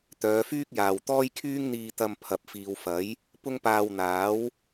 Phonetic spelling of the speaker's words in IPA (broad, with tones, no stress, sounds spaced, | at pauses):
t̪ œː˨˧ f yː˥ k̚ j aː˨ w t̪ ɔː˥ j kʰ yː˥ ŋ n̪ iː˧ t̪ ɐ˧ m pʰ ɐ˨ p̚ f iː˨ w f ɐ˨˥ j | p ʊ˥ ŋ p aː˧ w n̪ aː˨˥ w